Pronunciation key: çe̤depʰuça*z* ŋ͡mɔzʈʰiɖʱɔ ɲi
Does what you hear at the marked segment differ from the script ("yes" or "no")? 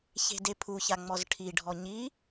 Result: yes